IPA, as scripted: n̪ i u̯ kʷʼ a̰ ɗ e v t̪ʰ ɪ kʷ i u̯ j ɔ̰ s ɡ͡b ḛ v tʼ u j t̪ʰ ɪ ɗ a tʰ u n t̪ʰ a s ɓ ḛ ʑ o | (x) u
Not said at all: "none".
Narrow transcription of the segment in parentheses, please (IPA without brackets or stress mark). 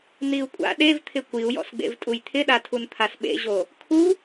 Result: kʰ